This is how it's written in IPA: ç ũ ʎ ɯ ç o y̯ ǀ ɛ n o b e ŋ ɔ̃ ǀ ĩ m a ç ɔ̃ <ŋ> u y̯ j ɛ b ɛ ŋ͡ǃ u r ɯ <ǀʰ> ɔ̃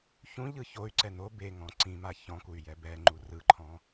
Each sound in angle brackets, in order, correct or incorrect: incorrect: k, incorrect: ǃʰ

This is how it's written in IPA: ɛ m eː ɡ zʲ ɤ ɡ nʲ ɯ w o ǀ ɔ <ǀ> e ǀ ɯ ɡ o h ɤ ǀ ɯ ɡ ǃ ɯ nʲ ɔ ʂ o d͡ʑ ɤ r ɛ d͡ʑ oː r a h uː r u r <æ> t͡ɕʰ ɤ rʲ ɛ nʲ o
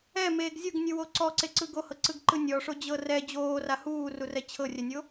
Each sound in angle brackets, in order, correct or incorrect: correct, incorrect: ɛ

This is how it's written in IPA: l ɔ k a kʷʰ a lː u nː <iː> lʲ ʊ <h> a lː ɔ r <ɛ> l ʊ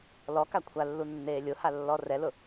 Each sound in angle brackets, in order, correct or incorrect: incorrect: eː, correct, correct

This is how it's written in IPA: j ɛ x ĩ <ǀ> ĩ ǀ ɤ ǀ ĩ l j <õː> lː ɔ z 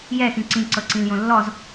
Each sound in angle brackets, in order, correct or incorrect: correct, incorrect: õ

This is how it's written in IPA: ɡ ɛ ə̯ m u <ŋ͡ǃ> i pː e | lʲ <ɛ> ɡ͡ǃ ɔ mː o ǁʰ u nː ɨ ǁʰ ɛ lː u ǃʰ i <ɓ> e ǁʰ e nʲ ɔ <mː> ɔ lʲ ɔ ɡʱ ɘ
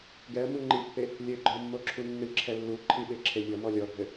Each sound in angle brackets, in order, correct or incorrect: correct, incorrect: ɘ, correct, incorrect: m

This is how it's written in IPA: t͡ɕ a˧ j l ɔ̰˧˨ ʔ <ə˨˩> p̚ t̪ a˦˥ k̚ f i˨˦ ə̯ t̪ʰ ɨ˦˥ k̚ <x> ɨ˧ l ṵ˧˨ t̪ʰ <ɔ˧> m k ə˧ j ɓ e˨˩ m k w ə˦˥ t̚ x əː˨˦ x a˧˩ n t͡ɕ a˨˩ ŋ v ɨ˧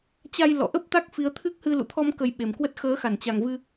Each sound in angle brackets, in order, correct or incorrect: incorrect: ə˦˥, incorrect: h, correct

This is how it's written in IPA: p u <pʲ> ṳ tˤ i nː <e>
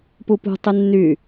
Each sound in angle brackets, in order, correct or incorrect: incorrect: p, incorrect: y

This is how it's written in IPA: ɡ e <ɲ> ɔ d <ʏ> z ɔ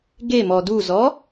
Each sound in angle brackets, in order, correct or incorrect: incorrect: m, incorrect: u

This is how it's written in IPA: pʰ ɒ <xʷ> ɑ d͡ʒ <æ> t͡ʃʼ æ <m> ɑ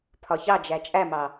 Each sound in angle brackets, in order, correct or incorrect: incorrect: ç, correct, correct

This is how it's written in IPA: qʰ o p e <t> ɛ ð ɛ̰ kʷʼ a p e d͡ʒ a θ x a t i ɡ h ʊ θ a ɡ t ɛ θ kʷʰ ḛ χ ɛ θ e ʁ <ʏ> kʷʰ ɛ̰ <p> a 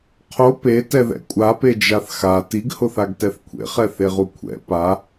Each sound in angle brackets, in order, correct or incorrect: correct, incorrect: u, correct

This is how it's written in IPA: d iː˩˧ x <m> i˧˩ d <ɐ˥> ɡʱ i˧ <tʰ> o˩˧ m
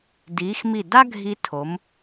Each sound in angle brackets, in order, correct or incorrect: correct, incorrect: a˥, correct

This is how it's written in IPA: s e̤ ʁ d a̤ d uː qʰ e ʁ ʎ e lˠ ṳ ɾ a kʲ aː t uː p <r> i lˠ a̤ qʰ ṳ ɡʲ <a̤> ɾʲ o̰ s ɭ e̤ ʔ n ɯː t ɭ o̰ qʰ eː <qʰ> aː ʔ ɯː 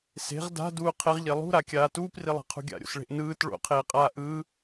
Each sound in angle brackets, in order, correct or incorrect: correct, incorrect: a̰, incorrect: qʼ

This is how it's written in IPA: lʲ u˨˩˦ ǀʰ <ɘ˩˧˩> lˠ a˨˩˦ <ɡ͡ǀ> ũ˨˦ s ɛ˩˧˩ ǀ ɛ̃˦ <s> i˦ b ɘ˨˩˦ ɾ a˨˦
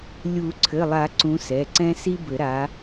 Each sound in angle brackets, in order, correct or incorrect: correct, incorrect: ǀ, correct

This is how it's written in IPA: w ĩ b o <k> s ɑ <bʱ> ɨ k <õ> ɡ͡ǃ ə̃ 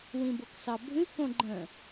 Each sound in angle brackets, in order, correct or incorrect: correct, correct, correct

